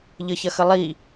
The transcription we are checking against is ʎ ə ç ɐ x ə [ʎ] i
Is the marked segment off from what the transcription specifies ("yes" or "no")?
yes